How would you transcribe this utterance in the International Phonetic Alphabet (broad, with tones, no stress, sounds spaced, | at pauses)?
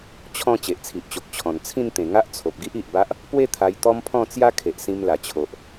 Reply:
t͡ɕʰ ɔ̃˥˧ t͡ɕ e˨ ʔ t͡sʰ i˨ ʔ t͡ɕ o˨ k̚ t͡ɕʰ ɔ̃˨˩ n t͡sʰ ĩ˥˧ n t̪ ẽ˨˩ ŋ a˦ ʔ t͡sʰ o˨ p̚ ɡ i˦ ʔ i˨ ʔ b a˦ ʔ | p w e˥˧ t̪ʰ a˧ j t̪ ɔ˦ m pʰ ɔ̃˥˧ t͡s j a˦ kʰ e˨ ʔ s ĩ˧ m l a˨˩ t͡ɕʰ o˨ ʔ